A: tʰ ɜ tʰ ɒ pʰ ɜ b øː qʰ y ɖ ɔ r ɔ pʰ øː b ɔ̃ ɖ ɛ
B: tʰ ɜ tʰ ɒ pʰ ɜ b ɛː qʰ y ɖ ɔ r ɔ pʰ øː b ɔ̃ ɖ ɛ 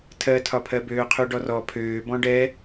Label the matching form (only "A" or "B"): A